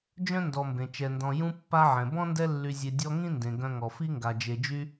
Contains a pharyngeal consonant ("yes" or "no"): yes